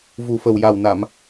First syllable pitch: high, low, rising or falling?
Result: low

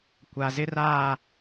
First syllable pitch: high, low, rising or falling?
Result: low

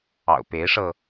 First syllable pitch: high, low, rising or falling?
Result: low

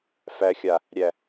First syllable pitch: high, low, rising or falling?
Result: low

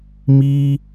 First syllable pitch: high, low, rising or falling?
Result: high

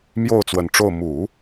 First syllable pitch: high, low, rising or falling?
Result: falling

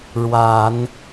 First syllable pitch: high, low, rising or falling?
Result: low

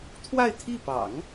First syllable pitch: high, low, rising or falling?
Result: falling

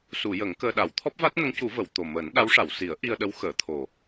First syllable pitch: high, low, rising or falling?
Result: low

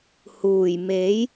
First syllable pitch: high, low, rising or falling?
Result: low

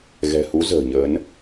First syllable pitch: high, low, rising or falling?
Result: low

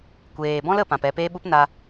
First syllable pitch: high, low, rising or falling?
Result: low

